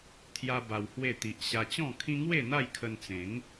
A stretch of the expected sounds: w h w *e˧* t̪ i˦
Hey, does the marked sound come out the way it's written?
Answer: no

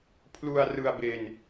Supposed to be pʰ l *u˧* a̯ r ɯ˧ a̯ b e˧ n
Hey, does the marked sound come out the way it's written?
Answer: yes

